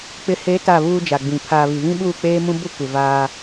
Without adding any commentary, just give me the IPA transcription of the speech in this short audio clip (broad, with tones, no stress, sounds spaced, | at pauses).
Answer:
k͡p ɪ˨ h e˨˦ t a˦˨ β uː˦ d͡ʒ a˨ ɡ͡b ĩ˨ pʰ aː˨ β i˨ β ĩ˦ ɓ uː˦˨ k͡p eː˦ m ũ˦ b ʊ˦ kʷ ɪ˨ v aː˦